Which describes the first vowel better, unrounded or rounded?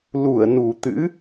rounded